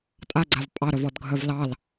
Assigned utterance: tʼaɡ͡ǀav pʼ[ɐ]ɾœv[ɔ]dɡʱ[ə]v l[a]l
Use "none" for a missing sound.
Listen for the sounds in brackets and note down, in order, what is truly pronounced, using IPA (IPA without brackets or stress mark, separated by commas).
ɑ, ɔ, œ, ɑ